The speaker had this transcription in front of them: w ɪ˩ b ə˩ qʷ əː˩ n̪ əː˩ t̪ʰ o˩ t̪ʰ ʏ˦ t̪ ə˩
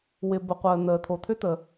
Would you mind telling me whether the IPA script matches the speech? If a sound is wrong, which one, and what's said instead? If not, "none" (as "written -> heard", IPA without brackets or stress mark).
none